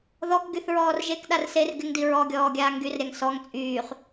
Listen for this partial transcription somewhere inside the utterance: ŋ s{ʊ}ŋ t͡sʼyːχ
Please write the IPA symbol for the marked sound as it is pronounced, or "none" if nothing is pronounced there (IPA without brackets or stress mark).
ɔ